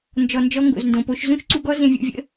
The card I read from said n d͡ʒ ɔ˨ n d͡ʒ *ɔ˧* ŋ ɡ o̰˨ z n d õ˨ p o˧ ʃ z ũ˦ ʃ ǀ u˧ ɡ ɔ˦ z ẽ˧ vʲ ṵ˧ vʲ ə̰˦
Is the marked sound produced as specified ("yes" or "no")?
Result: yes